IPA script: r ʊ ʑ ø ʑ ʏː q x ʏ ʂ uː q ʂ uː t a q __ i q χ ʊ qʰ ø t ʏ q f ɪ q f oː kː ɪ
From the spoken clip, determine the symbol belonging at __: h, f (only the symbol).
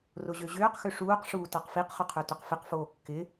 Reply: f